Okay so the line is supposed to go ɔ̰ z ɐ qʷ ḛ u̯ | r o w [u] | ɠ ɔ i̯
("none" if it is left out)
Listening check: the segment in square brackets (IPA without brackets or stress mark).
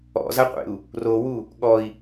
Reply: u